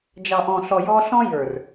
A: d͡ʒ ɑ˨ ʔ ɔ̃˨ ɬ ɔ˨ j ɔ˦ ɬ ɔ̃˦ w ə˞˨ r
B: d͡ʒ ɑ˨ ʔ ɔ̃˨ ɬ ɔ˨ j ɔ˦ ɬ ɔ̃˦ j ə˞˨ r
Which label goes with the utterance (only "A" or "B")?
B